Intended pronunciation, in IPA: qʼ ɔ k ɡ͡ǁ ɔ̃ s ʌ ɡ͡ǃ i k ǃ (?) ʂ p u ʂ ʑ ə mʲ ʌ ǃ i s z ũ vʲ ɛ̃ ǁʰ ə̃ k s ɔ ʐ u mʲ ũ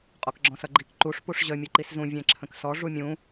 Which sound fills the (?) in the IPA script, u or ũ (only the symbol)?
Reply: u